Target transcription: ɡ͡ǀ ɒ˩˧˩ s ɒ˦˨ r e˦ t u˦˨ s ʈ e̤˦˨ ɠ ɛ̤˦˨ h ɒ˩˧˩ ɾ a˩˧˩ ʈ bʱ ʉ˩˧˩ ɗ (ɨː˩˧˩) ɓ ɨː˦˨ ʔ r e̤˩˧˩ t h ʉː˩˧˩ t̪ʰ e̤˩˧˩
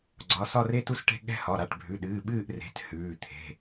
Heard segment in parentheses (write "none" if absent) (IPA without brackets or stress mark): ɨː˩˧˩